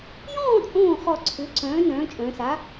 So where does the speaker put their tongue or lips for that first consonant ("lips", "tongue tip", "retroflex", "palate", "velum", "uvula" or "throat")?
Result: palate